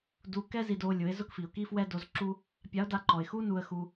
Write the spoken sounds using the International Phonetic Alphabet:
d u˧ k ɛ˥ z i˧ d o˧ lʲ ʊ˩˧ ɪ̯ z ʊ˥ k f i˩ ʊ̯ k i˥ f w ɛ˥ d o˧˥ z ǁ u˥ | pʲ a˧˥ ʊ̯ d a˧˥ ǃ ɔ˩ ɪ̯ x u˥ n u˧ ə̯ x u˧

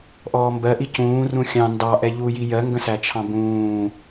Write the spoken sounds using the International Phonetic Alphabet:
ʔ ɔː m b ɜ ʔ i c ũː r ũ xʲ ɑ̃ n d ɑ ʔ ɛ ʎ u j i j ɜ ŋ ɡ ə̃ s æ t͡ʃʰ ɑ̃ b ũː

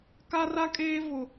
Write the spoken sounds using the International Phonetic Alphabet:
k a˦ r a˦ kʼ eː˦ v ʊ˦

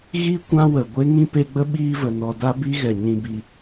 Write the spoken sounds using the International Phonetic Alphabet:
ɣ i˦ kʷ ã˦ w ə˨ ɡʷ e˦ ŋ ĩ˦ p e˧ ɡ͡b ə˦ ɓ iː˦ v ə˨ n ɔ˧ d a˦ b i˦ ɣ ɛ˨ ɲ ĩ˧ b i˧

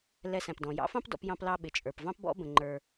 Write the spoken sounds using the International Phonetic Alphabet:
l ɛ˧ s æ̃˩ p d ɔ̃˩ j ɑ̰˥ f ɑ̃˥ p d ɔ̰˧ p j ɑ̃˧ p l ɑ˧ ɓ ɪ˩ t͡ʃʼ ə˞˩ p v ɑ̃˥ p b ɔ̰˥ b ə̃˩ ŋ͡ǃ ə˞˩

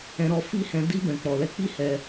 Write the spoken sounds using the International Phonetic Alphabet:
ɛ̃˧ ɾ ɔ˧ f i˦ h ɛ̃˧ d i˧ b ɛ̃˨ k͡p ɔ˨ l ɛ˧ k͡p i˦ h ɛ˧

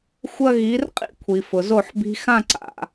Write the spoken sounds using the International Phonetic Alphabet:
xʷ ɐ˦ ɣ i˨˦ r qʼ ḭ˦ kʷʰ i˨ f ʊ˨ z o˦˨ ħ b i̤˧ x ã˦˨ ǀ a̰˨

